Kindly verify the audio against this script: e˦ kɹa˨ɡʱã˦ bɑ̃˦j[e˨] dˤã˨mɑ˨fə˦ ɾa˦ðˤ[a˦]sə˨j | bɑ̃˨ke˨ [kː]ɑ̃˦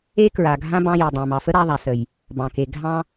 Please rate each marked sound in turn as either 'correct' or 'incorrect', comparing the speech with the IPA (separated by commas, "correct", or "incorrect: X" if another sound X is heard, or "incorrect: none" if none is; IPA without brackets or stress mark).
correct, incorrect: a˨, incorrect: ɡʱ